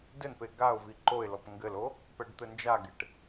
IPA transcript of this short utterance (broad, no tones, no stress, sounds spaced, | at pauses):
d ɘ n p e ɡ a ʊ̯ v i ǃ o ɪ̯ l ɔ p ŋ ɡ ɘ l o | p ɛ ɖ t̪ ɘ n d͡ʒ a ɡ e ʈ